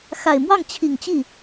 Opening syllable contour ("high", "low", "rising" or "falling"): low